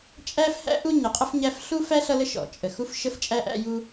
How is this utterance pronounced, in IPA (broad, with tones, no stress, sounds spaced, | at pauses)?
t͡ʃʼ æ˥ f h æ̰˥ ʔ u˥ ɲ ə˩ qʼ ə˥ f ɲ æ˥ f ɬ u˥ f æ˥ ɬ ʌ˦ l ə˦ ʃ ɔ̰˩ t͡ʃʼ ə˩ x u˦ f ʃ ə˥ f t͡ʃʼ æ˥ ʔ æ̰˦ j u˦